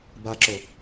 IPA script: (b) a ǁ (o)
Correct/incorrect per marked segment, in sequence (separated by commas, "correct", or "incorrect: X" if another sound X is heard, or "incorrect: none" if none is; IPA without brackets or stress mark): correct, correct